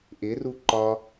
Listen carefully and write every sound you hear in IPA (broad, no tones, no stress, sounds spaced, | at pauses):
ʔ ɪ r u ǃ ɒ